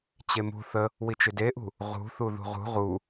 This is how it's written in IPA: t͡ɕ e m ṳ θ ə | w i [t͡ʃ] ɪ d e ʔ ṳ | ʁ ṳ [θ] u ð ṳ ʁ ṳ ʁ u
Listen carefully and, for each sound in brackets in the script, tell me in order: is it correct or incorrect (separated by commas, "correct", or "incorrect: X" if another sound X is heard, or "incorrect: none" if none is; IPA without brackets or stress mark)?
correct, correct